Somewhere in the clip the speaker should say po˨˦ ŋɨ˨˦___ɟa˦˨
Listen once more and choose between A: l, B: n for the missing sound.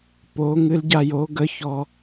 A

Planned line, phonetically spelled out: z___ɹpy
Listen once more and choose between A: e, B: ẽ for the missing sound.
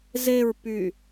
A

